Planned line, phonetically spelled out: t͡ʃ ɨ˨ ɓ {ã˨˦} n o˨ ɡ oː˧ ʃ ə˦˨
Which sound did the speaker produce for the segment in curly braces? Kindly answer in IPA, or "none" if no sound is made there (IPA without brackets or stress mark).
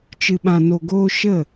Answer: ã˨